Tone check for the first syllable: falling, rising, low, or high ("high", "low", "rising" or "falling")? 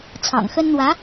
low